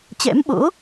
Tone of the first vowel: rising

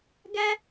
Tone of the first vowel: high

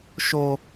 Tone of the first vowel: low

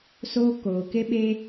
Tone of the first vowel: high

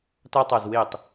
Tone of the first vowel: high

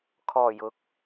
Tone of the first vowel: low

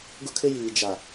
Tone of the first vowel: high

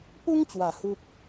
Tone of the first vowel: high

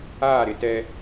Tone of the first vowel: falling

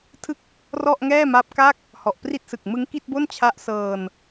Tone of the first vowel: falling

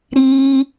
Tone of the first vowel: high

